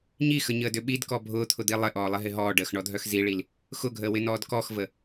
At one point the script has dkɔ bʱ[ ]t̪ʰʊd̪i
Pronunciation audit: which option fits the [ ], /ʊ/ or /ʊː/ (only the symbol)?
ʊː